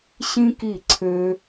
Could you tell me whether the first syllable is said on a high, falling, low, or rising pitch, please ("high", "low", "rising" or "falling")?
high